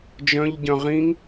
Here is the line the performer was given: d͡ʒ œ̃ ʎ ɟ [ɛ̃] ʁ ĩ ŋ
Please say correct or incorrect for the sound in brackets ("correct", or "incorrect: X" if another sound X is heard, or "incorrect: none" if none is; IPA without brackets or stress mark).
incorrect: œ̃